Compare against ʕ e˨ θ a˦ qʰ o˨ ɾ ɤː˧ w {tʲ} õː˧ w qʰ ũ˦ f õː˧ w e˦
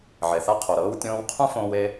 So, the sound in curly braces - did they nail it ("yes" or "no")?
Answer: yes